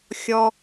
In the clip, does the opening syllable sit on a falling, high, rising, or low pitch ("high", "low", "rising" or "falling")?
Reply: low